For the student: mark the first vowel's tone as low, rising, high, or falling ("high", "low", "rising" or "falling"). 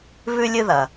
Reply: high